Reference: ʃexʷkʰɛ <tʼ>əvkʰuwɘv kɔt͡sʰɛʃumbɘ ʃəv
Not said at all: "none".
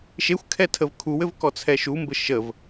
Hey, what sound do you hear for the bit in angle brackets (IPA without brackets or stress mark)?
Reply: tʰ